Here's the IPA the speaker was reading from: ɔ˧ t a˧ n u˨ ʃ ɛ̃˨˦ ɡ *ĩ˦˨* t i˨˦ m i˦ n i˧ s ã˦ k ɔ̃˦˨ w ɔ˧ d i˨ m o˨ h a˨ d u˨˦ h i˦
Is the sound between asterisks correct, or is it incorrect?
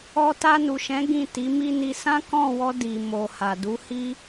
correct